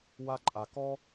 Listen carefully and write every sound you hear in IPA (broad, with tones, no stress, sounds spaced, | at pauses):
w a˦ ǃʼ a˧ k ɔ˦